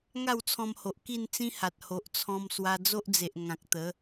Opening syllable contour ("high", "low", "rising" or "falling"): falling